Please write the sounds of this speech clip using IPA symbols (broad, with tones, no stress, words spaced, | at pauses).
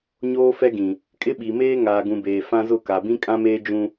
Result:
ɲoː˦fɛ˦ɡĩ˨ | kʼɪ˦ɓi˨meː˦ŋaː˨ ɡũ˨beː˨ fã˦ zʊ˦˨ka˨ bĩ˦kʼã˦meː˦ d͡ʒũ˦